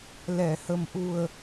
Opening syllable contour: low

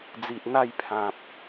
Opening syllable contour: low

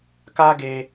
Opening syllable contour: high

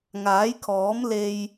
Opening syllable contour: rising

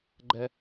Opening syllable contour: high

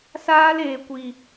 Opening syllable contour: high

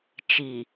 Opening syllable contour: low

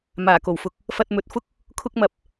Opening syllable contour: low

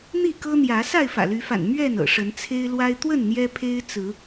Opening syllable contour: falling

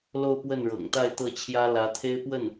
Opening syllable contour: falling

